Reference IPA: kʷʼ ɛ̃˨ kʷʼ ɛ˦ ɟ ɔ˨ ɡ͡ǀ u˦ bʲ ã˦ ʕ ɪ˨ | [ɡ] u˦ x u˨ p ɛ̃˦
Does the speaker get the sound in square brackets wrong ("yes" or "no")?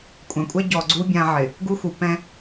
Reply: no